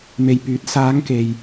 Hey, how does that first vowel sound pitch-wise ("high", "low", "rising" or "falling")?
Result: low